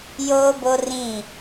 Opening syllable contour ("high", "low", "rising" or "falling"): high